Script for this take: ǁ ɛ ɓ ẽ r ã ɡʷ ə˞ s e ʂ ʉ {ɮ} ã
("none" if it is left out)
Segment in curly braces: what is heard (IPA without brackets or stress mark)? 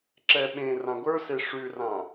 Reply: r